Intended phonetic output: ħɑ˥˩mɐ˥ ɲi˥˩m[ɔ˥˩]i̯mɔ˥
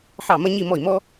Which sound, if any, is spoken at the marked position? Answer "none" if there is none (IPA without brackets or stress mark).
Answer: ɔ˥˩